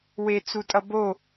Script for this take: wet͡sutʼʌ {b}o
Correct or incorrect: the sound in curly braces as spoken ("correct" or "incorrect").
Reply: correct